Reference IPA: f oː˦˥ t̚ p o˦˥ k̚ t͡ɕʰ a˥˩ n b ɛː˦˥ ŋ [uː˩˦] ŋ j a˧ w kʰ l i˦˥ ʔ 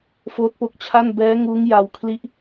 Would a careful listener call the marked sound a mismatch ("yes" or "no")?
yes